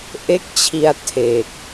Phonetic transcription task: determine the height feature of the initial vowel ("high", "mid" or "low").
mid